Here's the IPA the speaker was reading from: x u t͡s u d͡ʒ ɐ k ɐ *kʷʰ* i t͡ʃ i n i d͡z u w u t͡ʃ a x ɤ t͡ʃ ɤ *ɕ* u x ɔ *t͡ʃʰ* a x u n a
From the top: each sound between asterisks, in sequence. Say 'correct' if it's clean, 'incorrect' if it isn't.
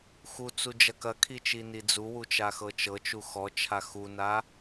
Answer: incorrect, incorrect, correct

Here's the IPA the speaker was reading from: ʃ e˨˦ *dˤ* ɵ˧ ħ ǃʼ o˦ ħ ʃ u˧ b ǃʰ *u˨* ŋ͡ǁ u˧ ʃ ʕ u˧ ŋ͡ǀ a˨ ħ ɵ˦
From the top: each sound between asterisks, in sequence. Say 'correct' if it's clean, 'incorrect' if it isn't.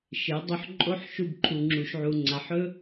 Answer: correct, correct

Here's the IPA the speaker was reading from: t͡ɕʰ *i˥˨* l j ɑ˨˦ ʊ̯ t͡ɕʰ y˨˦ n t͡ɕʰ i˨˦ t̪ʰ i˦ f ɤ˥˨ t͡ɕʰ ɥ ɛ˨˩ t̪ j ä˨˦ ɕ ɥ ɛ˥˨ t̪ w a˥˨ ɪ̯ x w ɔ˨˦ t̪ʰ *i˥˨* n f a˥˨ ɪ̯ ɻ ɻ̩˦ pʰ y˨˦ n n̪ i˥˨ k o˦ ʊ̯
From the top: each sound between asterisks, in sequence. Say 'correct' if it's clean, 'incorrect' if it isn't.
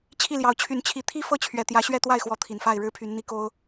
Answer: correct, incorrect

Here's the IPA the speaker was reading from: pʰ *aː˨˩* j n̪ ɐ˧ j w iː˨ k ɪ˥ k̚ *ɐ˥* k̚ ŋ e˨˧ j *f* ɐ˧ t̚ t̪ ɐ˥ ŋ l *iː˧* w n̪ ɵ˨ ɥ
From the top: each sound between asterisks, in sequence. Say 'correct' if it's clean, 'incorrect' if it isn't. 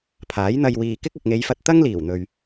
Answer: incorrect, incorrect, correct, incorrect

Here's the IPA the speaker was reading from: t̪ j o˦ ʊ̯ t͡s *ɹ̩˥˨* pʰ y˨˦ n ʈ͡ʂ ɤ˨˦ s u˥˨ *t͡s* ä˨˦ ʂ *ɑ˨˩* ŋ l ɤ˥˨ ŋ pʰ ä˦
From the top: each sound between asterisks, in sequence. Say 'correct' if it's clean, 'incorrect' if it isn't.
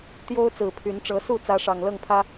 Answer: incorrect, correct, correct

